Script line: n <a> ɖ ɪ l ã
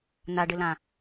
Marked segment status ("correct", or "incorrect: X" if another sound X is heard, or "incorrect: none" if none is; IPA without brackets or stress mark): correct